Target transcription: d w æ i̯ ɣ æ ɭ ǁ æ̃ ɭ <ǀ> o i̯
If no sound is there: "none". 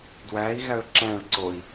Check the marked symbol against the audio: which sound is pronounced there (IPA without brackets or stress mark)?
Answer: ǀ